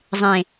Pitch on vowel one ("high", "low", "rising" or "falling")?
low